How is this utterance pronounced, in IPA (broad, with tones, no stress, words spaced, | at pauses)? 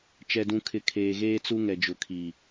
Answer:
t͡ʃɛ˨dũ˨kʰɪ˨ kʰeː˨ɣeː˦t͡su˦ ŋɛ˨d͡ʒʊ˨kʰi˨